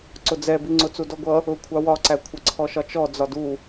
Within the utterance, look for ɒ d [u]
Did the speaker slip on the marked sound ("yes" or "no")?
no